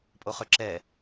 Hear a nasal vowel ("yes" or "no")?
no